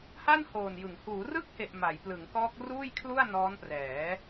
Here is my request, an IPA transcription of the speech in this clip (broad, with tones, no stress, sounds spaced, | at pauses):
h a˥˩ n h oː˨˩ n j ɯ˩˦ ŋ h uː˩˦ r ɯ˥˩ k̚ h e˨˩ ʔ m a˩˦ j p l ɯ˩˦ ŋ k ɔː˦˥ k̚ r uː˥˩ j kʰ l u˥˩ a̯ n ɔː˦˥ n p r ɛː˩˦